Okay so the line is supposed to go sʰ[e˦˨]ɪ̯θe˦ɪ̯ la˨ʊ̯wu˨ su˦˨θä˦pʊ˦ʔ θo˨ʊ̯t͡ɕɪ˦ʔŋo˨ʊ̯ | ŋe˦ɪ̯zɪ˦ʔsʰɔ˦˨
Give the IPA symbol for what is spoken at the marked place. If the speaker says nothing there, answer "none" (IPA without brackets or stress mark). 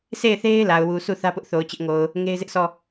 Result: e˦˨